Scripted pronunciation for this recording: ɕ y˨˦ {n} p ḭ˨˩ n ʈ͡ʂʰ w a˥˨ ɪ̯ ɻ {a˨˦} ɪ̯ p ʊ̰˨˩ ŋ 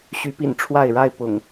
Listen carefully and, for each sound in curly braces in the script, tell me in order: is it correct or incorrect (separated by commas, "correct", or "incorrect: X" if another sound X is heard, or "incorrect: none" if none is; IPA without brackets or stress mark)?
incorrect: none, incorrect: a˥˨